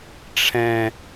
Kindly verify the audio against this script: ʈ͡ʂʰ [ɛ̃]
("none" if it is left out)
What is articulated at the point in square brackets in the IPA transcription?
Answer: ɛ̃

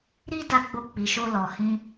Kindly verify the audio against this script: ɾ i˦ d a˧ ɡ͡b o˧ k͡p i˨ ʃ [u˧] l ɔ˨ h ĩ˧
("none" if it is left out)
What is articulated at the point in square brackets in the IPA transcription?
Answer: o˧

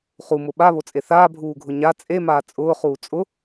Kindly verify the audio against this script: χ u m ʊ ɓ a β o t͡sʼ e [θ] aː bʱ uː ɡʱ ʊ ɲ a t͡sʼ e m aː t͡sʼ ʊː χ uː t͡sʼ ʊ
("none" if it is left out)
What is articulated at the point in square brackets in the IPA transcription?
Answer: θ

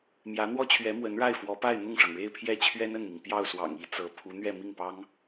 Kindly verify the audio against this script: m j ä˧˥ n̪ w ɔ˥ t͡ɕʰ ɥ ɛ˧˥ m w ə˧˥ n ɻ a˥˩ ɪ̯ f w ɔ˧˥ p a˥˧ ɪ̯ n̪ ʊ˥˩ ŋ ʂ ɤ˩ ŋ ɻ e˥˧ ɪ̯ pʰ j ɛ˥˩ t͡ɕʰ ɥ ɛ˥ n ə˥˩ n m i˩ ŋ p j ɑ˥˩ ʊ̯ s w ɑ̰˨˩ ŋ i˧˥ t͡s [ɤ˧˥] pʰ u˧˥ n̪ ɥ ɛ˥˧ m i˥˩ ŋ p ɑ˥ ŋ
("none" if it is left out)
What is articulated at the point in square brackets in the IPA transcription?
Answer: ɤ˧˥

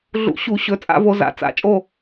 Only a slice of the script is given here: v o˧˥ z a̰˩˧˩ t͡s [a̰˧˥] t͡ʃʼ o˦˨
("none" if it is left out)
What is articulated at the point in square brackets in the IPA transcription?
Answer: a̰˨˩˦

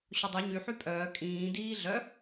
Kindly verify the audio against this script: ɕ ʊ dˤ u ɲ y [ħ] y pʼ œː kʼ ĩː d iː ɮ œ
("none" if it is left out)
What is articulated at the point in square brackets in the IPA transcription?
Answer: ħ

